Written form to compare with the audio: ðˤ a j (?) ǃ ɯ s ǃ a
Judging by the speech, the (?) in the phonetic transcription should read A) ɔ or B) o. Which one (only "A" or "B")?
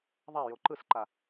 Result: B